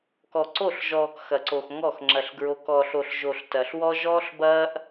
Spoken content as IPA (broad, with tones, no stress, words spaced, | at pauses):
kɔ˨ǀo˦˨ɬʒɔː˨k xɐ˨ǀo˨x ŋɔ˦˨x ŋ͡ǁɐ˨ɬɡɹo˨k ɔ˨ɬo˨ɬʒo˨ɬ tɐː˨ɬwɔ˦ ʒɔː˦ɬbɐː˦ʔ